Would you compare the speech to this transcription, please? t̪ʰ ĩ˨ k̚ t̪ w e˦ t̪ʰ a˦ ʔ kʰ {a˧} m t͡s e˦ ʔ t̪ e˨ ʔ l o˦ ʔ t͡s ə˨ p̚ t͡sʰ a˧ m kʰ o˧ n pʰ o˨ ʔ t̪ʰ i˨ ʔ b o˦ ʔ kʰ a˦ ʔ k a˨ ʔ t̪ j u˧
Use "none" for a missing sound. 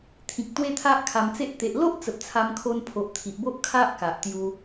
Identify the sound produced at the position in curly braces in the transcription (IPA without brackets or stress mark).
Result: a˧